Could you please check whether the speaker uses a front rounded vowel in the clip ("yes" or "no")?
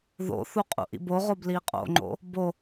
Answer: no